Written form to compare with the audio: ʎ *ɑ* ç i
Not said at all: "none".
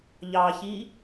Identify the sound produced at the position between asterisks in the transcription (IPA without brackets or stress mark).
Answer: ɑ